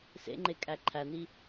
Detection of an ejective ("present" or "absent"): present